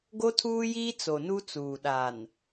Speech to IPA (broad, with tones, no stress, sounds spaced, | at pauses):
ɡ o˦ tʰ uː˦ j iː˦ t͡s o˨ n u˦ t͡s uː˨ ɗ a˨ n